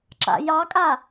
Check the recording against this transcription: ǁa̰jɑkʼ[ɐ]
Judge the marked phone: incorrect: a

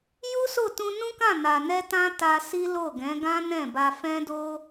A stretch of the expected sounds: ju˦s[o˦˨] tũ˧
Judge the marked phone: correct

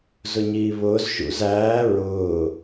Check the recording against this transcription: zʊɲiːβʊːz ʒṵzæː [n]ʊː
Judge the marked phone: incorrect: ɹ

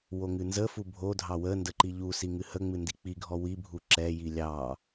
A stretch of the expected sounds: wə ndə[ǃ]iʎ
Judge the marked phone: correct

